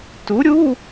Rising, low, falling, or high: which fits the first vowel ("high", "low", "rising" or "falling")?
rising